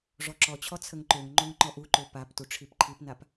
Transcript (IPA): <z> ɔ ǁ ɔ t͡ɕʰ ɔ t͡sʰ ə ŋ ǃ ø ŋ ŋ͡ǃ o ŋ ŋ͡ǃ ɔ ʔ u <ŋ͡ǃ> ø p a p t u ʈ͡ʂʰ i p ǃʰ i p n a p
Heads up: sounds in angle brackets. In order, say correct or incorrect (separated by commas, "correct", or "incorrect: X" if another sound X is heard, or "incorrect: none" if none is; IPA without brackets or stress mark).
incorrect: ʐ, incorrect: ǃ